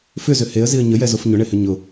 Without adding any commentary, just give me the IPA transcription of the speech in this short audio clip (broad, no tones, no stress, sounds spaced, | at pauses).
f ʏ z ʏ h e ə̯ z i ə̯ ɲ ə j ɛ z o f ɲ ʊ ɳ e h ʏ ɲ ʊ